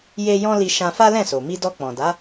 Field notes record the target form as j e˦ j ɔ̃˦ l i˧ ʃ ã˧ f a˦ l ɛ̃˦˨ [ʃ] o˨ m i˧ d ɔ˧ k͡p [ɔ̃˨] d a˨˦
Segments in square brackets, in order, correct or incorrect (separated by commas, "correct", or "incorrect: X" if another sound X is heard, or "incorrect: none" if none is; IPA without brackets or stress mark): incorrect: s, correct